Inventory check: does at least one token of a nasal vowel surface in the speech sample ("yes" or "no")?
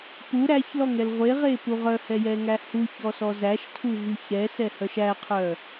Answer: no